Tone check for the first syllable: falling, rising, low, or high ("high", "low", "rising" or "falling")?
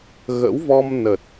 rising